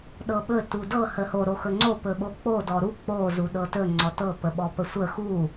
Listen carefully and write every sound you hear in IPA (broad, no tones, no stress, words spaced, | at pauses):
ɗɤɓɵ tudɤ həho ɾoxɵŋ͡ǀo pɵɓok͡po dɔɾu k͡po zuɗɤtɵ ŋ͡ǀɔtɤ pəɓɔpəsʷə xu